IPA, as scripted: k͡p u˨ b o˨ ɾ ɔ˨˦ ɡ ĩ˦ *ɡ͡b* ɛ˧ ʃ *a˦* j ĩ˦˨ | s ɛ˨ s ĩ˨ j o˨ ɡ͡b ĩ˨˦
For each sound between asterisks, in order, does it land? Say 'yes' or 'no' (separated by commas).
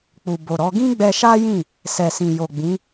yes, yes